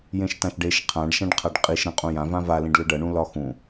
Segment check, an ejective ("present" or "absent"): present